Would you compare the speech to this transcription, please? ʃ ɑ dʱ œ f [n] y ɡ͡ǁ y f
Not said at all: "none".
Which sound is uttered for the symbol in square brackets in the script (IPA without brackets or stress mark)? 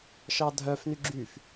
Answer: n